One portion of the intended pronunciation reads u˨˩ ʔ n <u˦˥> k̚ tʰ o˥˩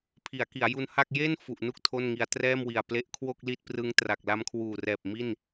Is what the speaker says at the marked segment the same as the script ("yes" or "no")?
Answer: no